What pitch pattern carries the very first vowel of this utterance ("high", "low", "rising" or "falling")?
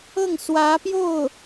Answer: falling